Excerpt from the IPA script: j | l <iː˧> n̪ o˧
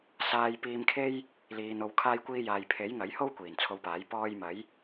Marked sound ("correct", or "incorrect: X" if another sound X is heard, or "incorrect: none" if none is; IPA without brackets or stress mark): incorrect: iː˨